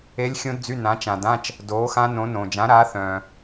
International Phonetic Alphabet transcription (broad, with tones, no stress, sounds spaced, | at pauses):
e˦˥ lʲ xʲ õ˦˥ d d͡z y˧˥˧ n ã˨˥ t͡ʃ ã˨ d ã˧˥˧ t͡ʃ | d oː˨˥ x ã˦˥ n õ˨˥ n õ˨ d͡ʒ ã˨˥ ɾ aː˨˥ θ œ̃ː˨